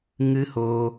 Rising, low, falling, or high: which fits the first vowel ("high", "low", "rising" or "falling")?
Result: high